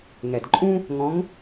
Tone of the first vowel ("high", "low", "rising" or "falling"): low